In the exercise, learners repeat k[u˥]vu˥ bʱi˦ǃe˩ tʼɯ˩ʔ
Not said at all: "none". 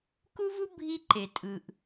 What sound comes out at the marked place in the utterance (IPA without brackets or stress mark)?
u˥